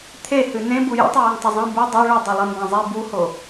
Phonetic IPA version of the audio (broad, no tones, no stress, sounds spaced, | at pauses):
t̪ʰ e h ɨ n ẽ b u j ḭ tˤ u j i ŋ tˤ ɵ zˤ ẽ b u dˤ a ɭ ɨ dˤ i lˠ i m b ã zˤ i b u h o